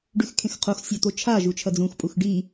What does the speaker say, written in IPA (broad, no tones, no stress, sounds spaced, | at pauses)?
ɖ ʉ x kʰ ẽ x qʰ o x sʲ a t̪ o t͡ʃʰ a ʒ u t͡ʃʰ ɐ d͡z ũ x pʼ u x ɖ i